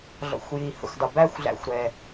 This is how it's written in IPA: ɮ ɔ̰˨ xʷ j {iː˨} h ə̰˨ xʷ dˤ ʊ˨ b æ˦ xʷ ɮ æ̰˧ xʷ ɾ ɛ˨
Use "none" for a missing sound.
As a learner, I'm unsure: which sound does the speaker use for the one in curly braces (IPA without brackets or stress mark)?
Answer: i˨